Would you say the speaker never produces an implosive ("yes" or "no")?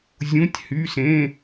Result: yes